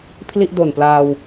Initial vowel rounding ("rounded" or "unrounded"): unrounded